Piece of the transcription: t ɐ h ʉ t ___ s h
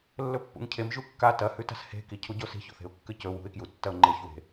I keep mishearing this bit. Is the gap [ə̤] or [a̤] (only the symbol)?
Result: a̤